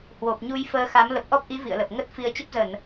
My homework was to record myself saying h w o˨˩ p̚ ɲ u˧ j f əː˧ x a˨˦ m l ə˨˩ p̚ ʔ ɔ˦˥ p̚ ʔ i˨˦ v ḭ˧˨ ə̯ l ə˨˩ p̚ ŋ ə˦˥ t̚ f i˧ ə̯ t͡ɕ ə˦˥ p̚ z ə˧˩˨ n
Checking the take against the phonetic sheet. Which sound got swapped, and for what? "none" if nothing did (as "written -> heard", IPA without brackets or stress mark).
none